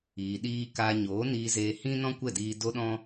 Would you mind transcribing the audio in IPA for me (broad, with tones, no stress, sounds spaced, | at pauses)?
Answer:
iː˨ ɗ iː˦ k aː˧ ɲ oː˨˦ n iː˧ z eː˧ h ĩ˦ n ɔ̃˦ kʷ ɛ˦˨ d iː˧ d o˦ ɗ ɔ̃˦